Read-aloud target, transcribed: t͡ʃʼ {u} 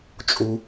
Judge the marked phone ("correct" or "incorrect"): correct